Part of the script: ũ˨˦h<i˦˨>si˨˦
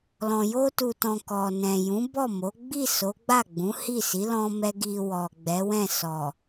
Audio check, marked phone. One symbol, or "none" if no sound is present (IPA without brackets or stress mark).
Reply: i˦˨